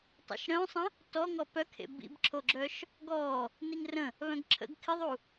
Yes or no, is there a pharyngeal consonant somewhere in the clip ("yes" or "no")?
no